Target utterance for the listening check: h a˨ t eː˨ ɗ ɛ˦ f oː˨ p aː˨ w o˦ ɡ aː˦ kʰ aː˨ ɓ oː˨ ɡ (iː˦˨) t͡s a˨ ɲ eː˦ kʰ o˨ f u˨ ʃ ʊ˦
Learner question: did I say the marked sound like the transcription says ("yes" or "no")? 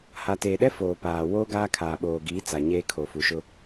no